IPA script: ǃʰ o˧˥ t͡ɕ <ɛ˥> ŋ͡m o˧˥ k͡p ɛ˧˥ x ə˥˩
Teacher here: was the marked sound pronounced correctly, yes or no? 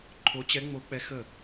no